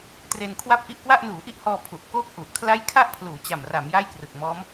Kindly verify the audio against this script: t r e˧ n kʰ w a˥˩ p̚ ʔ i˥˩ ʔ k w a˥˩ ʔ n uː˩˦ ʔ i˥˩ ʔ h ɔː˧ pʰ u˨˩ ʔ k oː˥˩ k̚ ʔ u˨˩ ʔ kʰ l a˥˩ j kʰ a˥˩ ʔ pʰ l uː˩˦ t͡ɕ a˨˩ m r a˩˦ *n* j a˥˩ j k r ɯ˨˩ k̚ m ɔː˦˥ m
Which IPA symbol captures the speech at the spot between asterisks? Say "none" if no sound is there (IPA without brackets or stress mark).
m